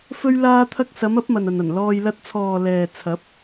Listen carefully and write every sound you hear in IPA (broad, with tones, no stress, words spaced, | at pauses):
fɵ˥ɥlaː˥t̪ʰɐ˥k̚ sɐ˨˧mɐ˨˥p̚ mɐ˨nɐ˨nɐ˨˩n lɔː˧j lɐ˧t̚t͡sʰɔː˨ lɛː˨t͡sʰɐ˨˥p̚